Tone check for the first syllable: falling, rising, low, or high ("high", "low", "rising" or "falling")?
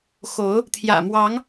rising